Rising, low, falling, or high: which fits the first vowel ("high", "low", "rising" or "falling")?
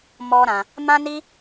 high